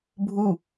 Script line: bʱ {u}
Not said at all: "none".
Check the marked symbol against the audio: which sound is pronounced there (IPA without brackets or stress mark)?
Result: u